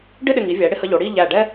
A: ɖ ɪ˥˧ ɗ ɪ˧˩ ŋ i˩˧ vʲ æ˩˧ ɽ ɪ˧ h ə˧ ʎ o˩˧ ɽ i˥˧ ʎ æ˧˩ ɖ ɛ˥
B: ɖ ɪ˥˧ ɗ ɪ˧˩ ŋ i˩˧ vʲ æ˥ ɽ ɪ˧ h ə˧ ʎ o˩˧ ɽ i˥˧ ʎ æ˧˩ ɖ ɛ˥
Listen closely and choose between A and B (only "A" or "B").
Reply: A